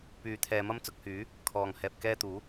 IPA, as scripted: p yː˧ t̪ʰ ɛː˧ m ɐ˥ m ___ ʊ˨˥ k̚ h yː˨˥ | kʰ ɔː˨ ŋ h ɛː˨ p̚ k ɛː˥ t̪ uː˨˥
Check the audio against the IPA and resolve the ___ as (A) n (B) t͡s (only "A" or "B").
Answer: B